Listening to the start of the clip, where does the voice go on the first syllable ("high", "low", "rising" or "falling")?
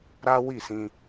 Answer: high